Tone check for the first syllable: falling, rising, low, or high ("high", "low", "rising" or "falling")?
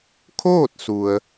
falling